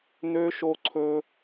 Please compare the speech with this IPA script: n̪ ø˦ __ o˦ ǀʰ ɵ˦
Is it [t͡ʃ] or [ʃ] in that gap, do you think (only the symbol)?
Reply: ʃ